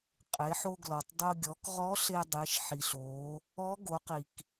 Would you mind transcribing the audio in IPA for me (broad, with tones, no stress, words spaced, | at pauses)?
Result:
qʼe˩˧ħo˧ɡlɔ˩tˤdˤo˧ ɡʲɔ˩˧kʁɔ˧˥ ɬe˧dˤe˩˧ʃħi˩ɬ o˩˧ | ɔ˧˥ ɡo˩˧qi˩k